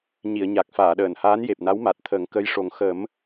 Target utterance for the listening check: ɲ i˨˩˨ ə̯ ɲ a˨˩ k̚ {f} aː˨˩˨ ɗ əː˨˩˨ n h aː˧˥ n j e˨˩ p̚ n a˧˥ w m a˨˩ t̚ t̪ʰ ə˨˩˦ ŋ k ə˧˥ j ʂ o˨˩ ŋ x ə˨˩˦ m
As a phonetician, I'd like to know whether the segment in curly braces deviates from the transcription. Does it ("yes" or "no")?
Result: no